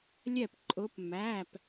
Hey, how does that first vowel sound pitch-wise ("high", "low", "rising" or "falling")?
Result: falling